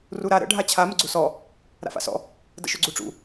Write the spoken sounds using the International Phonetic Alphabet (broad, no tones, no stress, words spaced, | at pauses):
ruɾa ɾə̰ ɖʱat͡ɕʰa məɡ͡ǀusɔ | ɾa̰fa̰sɔ̰ | də̰ʃɵɡ͡ǀuʈ͡ʂṵ